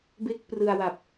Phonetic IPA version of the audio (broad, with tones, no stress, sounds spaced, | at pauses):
b e˥˩ k̚ p r ɯ˧ a̯ w a˨˩ p̚